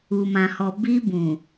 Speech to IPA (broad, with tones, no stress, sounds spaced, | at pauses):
u˨ m ã˨ h ɔ˨ b i˧ b ũ˨